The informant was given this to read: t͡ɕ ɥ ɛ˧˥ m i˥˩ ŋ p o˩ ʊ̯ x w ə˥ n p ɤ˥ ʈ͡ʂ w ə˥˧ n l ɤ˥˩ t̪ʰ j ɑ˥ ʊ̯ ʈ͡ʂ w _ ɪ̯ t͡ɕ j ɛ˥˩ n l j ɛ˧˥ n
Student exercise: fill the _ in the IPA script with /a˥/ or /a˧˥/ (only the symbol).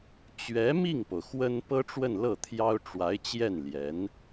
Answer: a˧˥